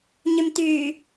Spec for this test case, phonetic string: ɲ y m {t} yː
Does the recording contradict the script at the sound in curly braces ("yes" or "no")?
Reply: no